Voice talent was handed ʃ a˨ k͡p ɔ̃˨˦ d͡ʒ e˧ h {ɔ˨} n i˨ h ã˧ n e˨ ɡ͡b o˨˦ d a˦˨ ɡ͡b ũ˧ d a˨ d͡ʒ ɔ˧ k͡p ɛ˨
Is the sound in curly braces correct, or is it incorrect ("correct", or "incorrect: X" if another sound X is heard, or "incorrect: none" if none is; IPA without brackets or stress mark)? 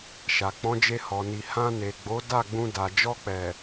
correct